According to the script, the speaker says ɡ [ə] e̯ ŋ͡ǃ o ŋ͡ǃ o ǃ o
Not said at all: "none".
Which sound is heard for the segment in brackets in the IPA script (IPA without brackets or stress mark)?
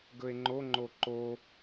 ɵ